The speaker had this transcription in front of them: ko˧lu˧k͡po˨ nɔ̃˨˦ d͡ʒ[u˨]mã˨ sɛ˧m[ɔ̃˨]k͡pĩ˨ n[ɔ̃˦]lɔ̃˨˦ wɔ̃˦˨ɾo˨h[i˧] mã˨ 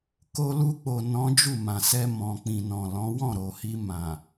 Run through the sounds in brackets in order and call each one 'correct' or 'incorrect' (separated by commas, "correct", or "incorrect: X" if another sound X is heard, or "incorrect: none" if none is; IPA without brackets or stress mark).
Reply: incorrect: u˦˨, correct, incorrect: ɔ̃˨, correct